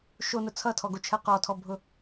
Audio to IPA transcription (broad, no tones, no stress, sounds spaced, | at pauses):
ʃ o n ʊ t͡sʰ ʌ tʰ ɔ ɡ o t͡ʃʰ ɜ q ɔ tʰ ɔ bʱ ʊ